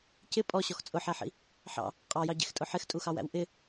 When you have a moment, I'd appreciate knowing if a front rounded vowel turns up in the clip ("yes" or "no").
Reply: no